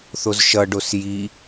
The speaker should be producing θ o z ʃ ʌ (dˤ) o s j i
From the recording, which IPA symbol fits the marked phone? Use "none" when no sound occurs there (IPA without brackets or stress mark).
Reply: ɖ